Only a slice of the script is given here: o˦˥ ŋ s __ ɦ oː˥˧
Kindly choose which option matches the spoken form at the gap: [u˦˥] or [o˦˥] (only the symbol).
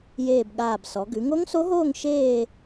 o˦˥